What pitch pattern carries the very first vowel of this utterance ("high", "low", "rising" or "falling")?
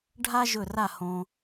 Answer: high